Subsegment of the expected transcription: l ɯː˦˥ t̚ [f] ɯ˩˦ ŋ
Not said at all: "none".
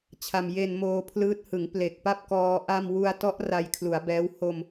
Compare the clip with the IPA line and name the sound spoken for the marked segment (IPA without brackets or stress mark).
h